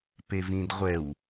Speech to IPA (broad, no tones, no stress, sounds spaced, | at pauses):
p e v ĩ d ʁʷ ɛ w